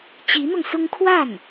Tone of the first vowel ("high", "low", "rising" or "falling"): rising